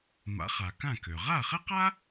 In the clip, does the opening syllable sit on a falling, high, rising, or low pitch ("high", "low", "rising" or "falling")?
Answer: rising